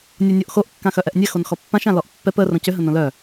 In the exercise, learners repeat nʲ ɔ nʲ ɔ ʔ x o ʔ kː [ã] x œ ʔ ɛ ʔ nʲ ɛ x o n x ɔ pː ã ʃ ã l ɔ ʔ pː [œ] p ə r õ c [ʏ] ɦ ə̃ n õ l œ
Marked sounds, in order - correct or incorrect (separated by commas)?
correct, incorrect, correct